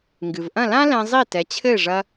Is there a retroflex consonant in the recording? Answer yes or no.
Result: yes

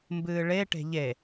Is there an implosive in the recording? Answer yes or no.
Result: no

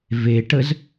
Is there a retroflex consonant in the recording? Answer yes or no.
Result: yes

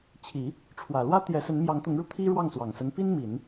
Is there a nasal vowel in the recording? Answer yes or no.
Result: no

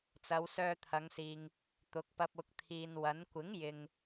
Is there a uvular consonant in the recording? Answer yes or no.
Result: no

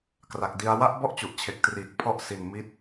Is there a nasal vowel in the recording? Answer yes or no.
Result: no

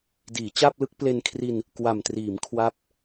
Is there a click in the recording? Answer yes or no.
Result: no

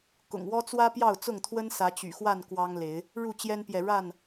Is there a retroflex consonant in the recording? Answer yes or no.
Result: yes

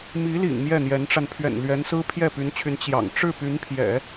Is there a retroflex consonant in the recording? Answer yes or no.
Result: yes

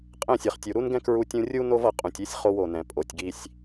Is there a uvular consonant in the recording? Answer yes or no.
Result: yes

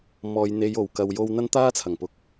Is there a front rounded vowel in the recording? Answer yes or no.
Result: no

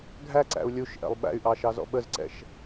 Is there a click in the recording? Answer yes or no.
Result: yes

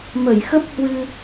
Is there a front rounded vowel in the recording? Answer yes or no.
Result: no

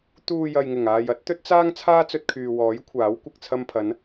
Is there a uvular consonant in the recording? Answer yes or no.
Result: no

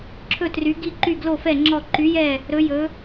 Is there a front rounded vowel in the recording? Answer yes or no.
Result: yes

